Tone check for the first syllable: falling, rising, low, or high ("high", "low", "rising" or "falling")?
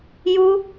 high